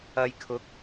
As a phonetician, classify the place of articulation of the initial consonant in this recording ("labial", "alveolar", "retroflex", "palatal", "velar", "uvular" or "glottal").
palatal